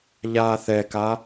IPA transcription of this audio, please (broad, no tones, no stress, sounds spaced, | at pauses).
ʎ aː θ ɛ k a